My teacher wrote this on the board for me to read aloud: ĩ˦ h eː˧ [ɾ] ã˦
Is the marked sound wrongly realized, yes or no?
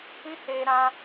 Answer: no